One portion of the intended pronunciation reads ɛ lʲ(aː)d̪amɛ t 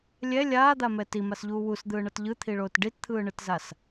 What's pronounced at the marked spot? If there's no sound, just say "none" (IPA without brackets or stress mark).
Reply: aː